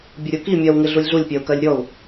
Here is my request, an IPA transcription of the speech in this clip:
bʲəɾʲuki mʲɜwŋɪ ɮulʲɮulʲpʲɜu̯kɜlʲ ɾʲɔu̯

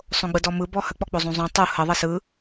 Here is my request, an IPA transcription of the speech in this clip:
sˤõɡ͡bɯdɔmɯ bɔhə k͡pɔk͡pozˤũzˤũ tˤu hə ðˤəsɯ

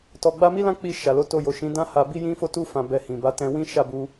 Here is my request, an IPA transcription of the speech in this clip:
tɔ˧ɡ͡ba˦ mi˦lã˦k͡pi˧ ʃa˨lo˨˦to˧ jo˨ʃĩ˨˦dã˦ ha˧bi˦ jĩ˦fo˦tu˦ fã˧bɛ˧hĩ˨ ba˨˦tɛ̃˧wĩ˦ ʃa˦˨bu˧

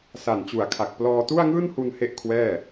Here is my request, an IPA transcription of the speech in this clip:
sa˨˩nt͡ɕu˨˩a̯kʰa˨˩k̚ plɔː˧tu˥˩a̯ŋɯː˥˩nhu˧n he˥˩ʔkʰwɛː˥˩

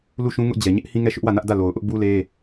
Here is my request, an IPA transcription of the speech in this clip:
lu˦˨ʃũ˦ ŋʊ˦ʔd͡ʑɛ˨ ɲɪ˦ʔhĩ˦ŋɛ˦˨ ʃʊ˦ʔwä˦˨nä˦ʔ dä˦˨lo˨ʊ̯ ʔʊ˦ʔbu˦le˦

